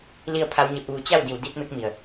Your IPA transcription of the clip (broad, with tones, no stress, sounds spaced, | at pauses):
l i˥˨ ə̯ pʰ a˧˥ w ɲ e˧ p̚ ʋ u˧ t͡ɕ a˥˨ w d i˧˩ w d i˧˥ t̚ m e˧˥ k̚ m i˩ ə̯